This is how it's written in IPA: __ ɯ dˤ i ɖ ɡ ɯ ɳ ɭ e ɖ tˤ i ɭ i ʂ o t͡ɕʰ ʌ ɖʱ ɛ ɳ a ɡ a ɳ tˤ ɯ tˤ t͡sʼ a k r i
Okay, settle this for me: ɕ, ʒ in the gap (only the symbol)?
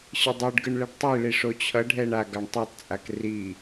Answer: ɕ